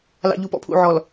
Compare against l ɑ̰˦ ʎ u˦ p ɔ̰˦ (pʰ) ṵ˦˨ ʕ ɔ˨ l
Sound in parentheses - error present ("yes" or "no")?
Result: no